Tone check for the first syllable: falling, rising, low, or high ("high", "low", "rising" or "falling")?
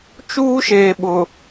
high